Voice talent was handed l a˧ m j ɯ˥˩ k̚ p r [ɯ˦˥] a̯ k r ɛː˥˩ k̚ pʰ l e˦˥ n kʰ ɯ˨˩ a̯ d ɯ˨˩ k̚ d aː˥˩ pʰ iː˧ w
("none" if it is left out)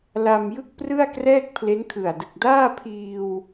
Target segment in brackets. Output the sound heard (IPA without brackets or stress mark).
ɯ˥˩